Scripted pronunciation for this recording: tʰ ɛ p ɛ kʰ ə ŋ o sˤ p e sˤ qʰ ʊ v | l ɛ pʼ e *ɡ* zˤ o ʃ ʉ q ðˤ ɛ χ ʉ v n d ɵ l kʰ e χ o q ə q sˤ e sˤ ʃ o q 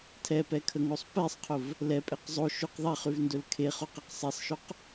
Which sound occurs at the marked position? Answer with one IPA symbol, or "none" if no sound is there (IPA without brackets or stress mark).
q